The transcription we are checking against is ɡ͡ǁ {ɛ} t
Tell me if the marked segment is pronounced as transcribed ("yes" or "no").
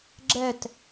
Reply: yes